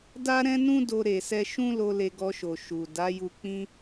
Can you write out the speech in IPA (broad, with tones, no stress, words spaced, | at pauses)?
da˦ɾɛ̃˦nũ˦ do˧ɾe˨sɛ˧ ʃũ˦lo˧ le˧ɡɔ˧ʃo˨ ʃu˨ da˨˦ju˧ k͡pĩ˦